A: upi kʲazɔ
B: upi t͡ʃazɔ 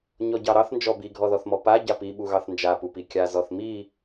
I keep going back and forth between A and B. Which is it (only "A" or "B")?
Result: A